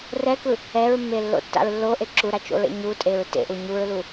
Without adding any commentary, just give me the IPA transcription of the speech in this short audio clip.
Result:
r ɛ k ɯ | ɛ ɹ mː e lː o̰ tː a̰ ɹ lː o ʔ e ǁ u ɾ a t͡ʃ o̰ ɹ ḛ ɲ u tʼ e ɹ t ḛ ʔ u ɲ u ɹ l u

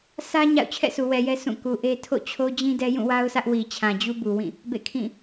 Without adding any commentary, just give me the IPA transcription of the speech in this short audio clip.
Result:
sʰ ä˦ ɲ a̰˦˨ ʊ̯ t͡ɕʰ ɛ̰˦˨ sʰ u˨ w ɛ˨ j ɛ˦ s ũ˦˨ k u˨ ʔ e˦ tʰ o̰˦˨ t͡ɕʰ o˦ d͡ʑ ĩ˦ d ɛ˦ j ũ˦˨ w a˦ ʊ̯ s ä˦ ʔ w i˨ t͡ɕʰ ã˨ d͡ʑ u˦ b u˨ w ĩ˦˨ | b ḛ˦˨ kʰ ĩ˦˨

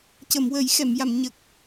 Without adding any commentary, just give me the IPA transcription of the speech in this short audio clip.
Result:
c ə˨˩˨ m w ə˨˩˦ j x ɛ˨˩˨ m j a˨˩˨ m ɲ ə˨˩ k̚

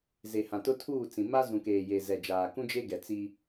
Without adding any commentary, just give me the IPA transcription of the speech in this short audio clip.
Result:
z e˨ h ã˨ t ʊ˦ tʰ uː˦˨ t͡s ĩ˨ m a˦ z ũ˨ k eː˨ j e˨ z ɛ˨ d͡ʒ aː˨ k ũ˦ d͡ʒ e˦ ɡ ɛ˨ t͡s i˦

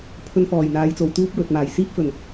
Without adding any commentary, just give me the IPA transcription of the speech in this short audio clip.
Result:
pʰ ɵ˧ n f ɔː˨˩ j n̪ aː˨˧ j t͡s o˨ w t̪ uː˥ p̚ w ɵ˨ t̚ m aː˨˩ j s iː˥ p̚ f ɵ˨˩ n

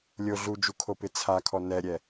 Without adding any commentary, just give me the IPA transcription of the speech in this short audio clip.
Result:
lʲ o ɮ u d͡ʒ u kʰ o p ɪ t͡sʰ a kʰ ɔ n ɛ ɾʲ ɛ

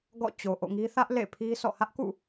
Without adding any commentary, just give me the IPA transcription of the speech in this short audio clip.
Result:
ɡ ɔ̰˦˨ t͡ɕ o˨ ʔ o̰˦˨ ŋ i˦ θ ä˦ ʔ l ḛ˦˨ pʰ i˦ s ɔ̰˦˨ h ä˦ ʔ k ṵ˦˨

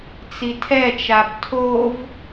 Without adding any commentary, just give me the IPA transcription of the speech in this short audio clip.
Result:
t͡s i tʰ ɛ t͡ʃ a b tʰ o v

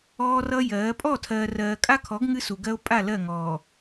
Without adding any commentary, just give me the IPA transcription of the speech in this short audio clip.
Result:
ɔː˦ r ʌ˦ j ɜː˨˦ pʼ ɔ˦˨ tʰ ɜː˨ r ɜː˨ kʼ a˦ kʰ ɔ˨˦ ɡ ŋ ɨ˦ s u˨ ɡ ɜ˦ o̯ pʼ a˦˨ l ɜ˦˨ ŋ ɔː˨

